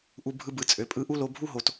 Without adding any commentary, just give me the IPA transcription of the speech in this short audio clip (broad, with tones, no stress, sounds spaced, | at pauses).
ʔ u˧ bʱ ɯ˧ b ɯ˨ t͡sʼ ø˨ pʼ ɯ˧ ʔ u˦ l o˧ bʱ u˦ ɦ o˨ t